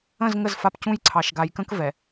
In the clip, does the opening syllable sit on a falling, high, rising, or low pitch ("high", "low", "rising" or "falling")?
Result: falling